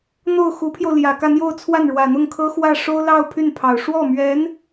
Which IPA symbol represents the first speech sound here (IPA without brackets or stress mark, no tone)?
n̪